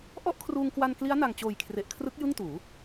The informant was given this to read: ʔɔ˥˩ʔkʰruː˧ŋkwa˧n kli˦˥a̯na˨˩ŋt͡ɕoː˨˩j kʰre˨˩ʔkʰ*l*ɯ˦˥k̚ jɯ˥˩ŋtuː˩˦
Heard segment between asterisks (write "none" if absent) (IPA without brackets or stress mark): r